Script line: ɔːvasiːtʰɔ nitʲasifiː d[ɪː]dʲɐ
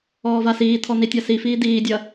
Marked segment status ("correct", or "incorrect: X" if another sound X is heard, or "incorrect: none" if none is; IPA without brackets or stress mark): incorrect: iː